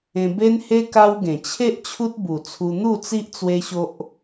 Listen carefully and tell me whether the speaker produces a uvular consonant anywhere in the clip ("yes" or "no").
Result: no